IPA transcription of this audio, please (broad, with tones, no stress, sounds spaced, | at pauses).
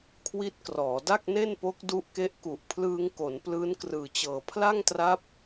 kʰ w i˦˥ t̚ k r ɔː˩˦ d a˥˩ k̚ n e˥˩ n p o˦˥ k̚ d u˦˥ ʔ k e˦˥ ʔ k u˨˩ ʔ pʰ l ɯː˧ ŋ k o˩˦ n p l ɯː˦˥ n k r ɯː˨˩ t͡ɕ ɤː˨˩ pʰ l a˥˩ ŋ t r a˦˥ p̚